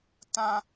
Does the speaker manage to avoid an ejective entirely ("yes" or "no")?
yes